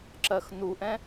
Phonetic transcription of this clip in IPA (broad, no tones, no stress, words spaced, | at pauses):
ǁɜxnuʔɛ̃